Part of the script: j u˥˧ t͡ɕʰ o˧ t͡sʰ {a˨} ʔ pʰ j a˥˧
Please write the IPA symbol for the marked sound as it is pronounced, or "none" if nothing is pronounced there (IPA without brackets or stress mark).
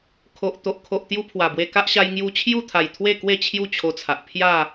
a˨